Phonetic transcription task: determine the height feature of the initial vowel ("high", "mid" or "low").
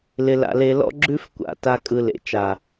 high